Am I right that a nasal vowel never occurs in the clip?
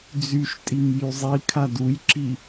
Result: yes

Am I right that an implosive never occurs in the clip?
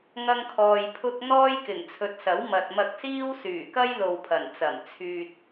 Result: yes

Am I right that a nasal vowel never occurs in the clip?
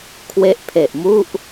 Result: yes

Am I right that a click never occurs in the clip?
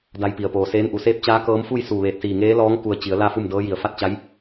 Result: yes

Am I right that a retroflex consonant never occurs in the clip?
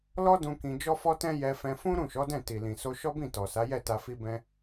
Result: yes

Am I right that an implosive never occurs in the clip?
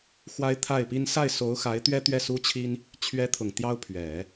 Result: yes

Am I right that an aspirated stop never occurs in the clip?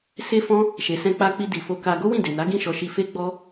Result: yes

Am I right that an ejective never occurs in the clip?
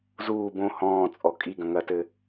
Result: no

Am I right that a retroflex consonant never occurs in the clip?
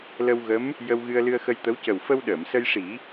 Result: no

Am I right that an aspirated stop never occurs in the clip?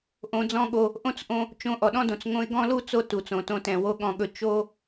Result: yes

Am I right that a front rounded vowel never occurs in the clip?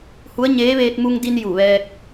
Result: yes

